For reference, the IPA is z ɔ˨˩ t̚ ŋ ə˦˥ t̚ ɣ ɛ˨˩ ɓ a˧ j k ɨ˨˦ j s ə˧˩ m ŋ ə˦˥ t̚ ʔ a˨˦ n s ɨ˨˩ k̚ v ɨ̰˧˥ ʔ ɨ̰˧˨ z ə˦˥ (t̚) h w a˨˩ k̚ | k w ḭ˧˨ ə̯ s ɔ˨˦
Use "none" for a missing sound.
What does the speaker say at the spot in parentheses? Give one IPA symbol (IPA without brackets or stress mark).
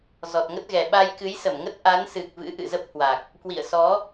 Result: p̚